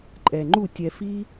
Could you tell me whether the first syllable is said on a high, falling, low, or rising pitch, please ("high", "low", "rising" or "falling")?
low